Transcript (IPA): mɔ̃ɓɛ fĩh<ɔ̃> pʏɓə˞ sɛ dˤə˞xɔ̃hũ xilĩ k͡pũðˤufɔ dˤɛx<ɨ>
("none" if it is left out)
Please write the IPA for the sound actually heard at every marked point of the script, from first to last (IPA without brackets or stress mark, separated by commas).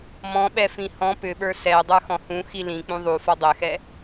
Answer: ɔ̃, ɛ